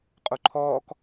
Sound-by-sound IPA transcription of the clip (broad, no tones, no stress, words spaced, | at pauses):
qʼuǃʰɔːk